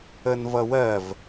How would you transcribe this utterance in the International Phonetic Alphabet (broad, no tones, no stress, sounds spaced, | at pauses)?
ə n v ʌ w ɜ v